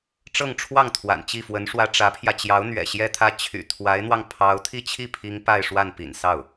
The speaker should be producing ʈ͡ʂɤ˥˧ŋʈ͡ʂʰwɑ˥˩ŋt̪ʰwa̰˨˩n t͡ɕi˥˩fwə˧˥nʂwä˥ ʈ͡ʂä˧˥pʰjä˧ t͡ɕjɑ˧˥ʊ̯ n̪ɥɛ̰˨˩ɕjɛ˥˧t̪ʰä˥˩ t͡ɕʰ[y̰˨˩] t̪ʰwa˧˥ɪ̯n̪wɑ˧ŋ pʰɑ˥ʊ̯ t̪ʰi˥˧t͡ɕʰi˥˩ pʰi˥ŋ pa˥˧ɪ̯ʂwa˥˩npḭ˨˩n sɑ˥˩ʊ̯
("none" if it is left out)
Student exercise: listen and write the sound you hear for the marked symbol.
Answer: y̰˨˩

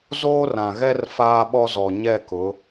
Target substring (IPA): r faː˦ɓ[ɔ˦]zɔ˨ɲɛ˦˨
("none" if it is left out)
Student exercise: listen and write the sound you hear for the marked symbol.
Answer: ɔ˦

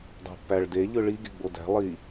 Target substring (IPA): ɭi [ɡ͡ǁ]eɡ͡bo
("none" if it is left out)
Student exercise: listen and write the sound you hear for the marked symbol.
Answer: ɡ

